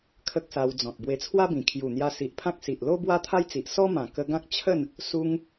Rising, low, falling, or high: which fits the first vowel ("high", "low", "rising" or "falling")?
high